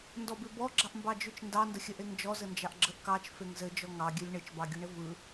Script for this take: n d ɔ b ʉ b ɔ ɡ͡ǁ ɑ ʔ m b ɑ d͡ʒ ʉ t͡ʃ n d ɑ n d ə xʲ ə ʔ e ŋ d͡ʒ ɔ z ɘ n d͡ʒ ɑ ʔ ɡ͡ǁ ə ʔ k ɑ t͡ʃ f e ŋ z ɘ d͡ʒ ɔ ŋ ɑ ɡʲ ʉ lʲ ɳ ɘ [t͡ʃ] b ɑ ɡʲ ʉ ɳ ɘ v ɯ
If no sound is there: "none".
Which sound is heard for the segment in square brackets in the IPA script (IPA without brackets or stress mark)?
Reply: t͡ʃ